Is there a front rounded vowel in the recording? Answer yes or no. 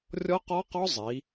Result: no